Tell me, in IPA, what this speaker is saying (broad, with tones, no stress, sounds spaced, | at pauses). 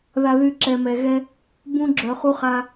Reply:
ð a˨ ð y˨ ǁ ɛ˨ m ɛ˨ ɣ ɛ˦ | b ũ˦ ɡ͡ǁ œ˨ χ u˦ χ a˦